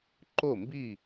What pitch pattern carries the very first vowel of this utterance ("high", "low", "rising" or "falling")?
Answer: falling